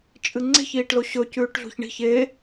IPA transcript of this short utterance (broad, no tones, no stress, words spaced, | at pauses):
t͡ʃʼɨŋ͡ǀe̤ç iːʈloɕɵ cʉːʈɮṳçɳi̤ç e